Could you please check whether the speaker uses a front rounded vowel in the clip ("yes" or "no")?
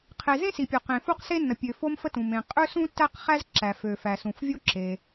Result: yes